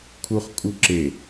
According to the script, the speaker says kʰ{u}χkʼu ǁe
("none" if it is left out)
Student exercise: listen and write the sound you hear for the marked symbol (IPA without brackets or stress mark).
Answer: u